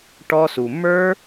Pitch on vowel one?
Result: high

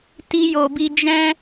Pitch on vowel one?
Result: high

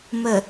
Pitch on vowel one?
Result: low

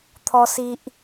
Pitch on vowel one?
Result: high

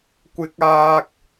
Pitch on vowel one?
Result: high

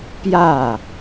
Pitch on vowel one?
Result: falling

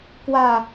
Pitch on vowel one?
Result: falling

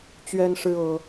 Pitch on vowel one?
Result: high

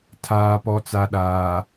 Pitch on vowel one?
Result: low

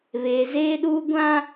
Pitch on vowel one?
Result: low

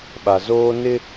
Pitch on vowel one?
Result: low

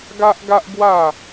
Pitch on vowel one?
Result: high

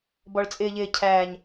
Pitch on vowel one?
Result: low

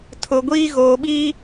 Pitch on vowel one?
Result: low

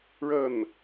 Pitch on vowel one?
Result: falling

